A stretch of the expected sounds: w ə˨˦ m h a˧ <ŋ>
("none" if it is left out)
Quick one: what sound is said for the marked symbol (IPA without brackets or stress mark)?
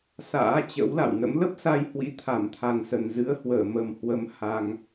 ŋ